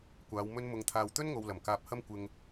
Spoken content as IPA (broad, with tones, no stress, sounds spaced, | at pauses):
kʷ aː˨˧ w m ɵ˧ n m ʊ˨ ŋ t̪ʰ aː˨ w t̪ ɵ˥ n ŋ o˨ w l ɐ˨˩ m k aː˨ p̚ h ɐ˥ m kʷ ɪ˧ ŋ